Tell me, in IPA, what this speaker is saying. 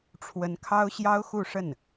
ʈ͡ʂʰ w ə˧˥ n kʰ ɑ˥ ʊ̯ ɕ j ɑ˥ ʊ̯ x u˥˧ ʂ ə˥˩ n

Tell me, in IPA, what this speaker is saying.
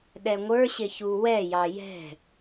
ɗ ɛ ŋʷ ə˞ ɕ ɪ ç u w ɛ j ɑ j ɛ̤

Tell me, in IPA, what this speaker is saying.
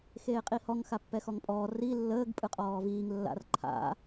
x eː qʼ i h ɔ ŋ x a pː ɛ x ɔ ŋ pʼ ɔː r i lː əː ɡ pʼ ɯ qʼ ɔː v iː ŋ lː a̰ r ǃʰ a̰

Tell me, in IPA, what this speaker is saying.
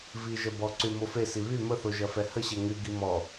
v i ʒ ɐ b ɔ ǀ y m o f e s i β y m ə θ o ʒ ɐ f ɛ h ə ɕ ɛ ŋ y ɡ i m ɔ

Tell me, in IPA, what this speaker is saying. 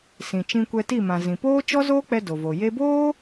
s ĩ˨ t͡ʃ ĩ˧ kʷ ɛ˧ t i˦˨ m ã˨ z ĩ˨ p oː˦ t͡ʃ ɔ˦ z oː˦ k͡p ɛ˧ d o˨ v o˨ j e˧ b oː˦

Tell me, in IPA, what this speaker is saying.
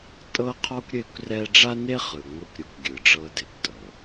tʼ ɤ˦ qʰ ɔ˦ kʷ ɾʲ e˦ kʷ r ɛ˦ ɖ͡ʐ a˦ n e˦ χ ɯ˨ ŋʷ ɯ˦ kʷ ɾʲ u˨˦ kʷ ɡʲ ɯ˨ ɖ͡ʐ ɤ˦ d e˨ kʷ tʼ ɤ˨

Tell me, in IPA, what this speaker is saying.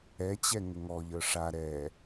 ɛ t͡ɕ ɛ ŋ ə ŋ ɔ ʎ ə˞ ʂ a ɾ ɛ

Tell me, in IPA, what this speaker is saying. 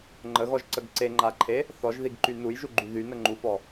ŋ͡ǃ ə ɣ ɔ ʒ ǀ ə ɡ ǀ e ŋ͡ǃ a ǃʰ e | θ ɔ ʒ ð i ɡ ǃ y n u j ʒ u ɡ͡ǃ y ð y n ə ŋ͡ǃ u f ɔ

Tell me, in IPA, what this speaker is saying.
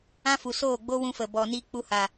ã˦ f u˨ s oː˦˨ ɡ͡b o˦ w ũ˧ f ə˨ b ɔ˨ n i˧ k͡p u˧ h a˨

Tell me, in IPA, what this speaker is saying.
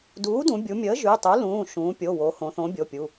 d uː˩˥ d ũ˩˧ bʲ u˩˧ mʲ əː˩˥ ʒ y˩˧˩ tˤ u˩˥ l ũː˩˧˩ ʃ ũː˩˧ pʲ o˩˧˩ w o˩˧ h õ˩˧ θ õ˩˥ bʲ o˩˧˩ pʲ u˩˧˩

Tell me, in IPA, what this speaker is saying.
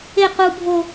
e q u bʱ o

